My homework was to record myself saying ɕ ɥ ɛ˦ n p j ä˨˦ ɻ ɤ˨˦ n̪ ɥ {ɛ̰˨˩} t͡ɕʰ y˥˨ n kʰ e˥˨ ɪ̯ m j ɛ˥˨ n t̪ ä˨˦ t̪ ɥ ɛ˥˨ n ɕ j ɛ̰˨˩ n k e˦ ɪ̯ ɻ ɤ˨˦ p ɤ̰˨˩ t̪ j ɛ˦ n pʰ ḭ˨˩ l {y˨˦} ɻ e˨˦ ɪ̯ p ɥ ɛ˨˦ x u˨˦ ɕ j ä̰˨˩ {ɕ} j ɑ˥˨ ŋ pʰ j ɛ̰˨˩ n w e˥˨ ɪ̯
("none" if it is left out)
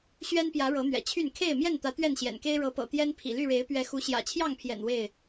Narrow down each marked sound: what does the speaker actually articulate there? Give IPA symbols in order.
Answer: ɛ̰˨˩, y˥˨, t͡ɕʰ

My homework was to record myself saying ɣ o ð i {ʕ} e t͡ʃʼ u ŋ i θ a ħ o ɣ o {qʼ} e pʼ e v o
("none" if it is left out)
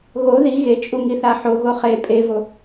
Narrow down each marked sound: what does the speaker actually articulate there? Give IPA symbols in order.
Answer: ɣ, χ

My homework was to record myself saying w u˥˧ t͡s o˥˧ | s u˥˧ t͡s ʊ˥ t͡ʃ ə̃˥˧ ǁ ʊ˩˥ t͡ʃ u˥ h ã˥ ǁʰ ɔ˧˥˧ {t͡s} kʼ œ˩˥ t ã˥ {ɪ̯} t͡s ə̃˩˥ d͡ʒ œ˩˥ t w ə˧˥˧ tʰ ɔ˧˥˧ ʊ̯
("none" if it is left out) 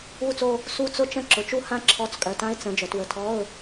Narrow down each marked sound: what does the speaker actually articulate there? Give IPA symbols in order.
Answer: t͡s, ɪ̯

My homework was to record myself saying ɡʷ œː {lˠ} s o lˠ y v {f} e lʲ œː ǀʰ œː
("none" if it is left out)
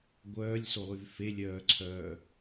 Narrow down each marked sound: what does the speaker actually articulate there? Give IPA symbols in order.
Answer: lʲ, f

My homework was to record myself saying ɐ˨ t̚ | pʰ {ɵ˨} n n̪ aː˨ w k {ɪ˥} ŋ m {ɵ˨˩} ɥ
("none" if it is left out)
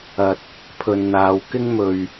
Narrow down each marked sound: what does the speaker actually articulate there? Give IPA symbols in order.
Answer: ɵ˨, ɪ˥, ɵ˨

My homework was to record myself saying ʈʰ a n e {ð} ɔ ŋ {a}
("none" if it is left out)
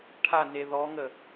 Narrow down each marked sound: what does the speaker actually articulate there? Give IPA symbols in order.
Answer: ð, ə

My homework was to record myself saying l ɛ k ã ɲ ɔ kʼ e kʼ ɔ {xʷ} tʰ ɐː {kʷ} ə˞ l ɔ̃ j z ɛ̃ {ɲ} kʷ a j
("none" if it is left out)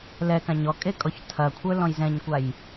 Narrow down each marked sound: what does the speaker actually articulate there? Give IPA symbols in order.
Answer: ç, kʷʰ, ɲ

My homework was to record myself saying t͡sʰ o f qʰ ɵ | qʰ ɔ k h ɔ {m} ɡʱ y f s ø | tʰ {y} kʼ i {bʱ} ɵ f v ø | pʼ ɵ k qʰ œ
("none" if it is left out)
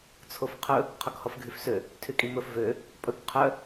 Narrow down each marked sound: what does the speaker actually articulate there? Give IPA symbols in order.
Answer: f, y, m

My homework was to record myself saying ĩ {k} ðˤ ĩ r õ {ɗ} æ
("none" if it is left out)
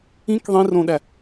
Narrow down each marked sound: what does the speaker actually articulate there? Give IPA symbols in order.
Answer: k, ɗ

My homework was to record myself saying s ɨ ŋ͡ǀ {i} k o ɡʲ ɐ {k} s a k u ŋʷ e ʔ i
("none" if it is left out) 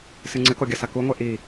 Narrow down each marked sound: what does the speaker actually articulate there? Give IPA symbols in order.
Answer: ɨ, none

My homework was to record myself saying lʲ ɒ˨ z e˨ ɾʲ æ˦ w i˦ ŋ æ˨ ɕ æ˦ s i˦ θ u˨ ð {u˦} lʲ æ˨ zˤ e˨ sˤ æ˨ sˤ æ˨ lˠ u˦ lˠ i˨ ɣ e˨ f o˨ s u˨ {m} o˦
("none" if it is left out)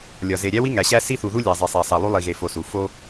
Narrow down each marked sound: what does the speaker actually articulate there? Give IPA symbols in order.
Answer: u˦, f

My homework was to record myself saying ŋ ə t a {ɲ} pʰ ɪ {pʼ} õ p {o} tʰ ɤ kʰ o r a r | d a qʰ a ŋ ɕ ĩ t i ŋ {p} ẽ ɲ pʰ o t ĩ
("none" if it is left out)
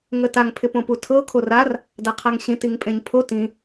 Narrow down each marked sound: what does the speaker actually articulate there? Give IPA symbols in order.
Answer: ŋ, p, u, pʼ

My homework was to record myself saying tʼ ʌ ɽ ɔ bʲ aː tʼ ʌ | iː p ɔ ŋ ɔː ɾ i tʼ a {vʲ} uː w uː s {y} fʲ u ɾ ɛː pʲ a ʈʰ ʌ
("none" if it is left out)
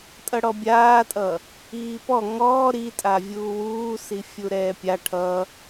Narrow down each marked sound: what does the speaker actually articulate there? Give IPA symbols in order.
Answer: vʲ, i

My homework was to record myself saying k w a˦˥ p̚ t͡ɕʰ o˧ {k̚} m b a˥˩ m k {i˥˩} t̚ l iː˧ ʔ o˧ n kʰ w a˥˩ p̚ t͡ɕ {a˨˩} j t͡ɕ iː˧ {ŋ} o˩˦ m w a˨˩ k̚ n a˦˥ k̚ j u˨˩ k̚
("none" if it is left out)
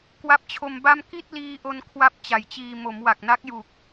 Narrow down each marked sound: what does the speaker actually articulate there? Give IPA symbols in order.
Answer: none, i˥˩, a˨˩, m

